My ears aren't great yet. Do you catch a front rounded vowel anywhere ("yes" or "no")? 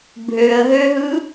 yes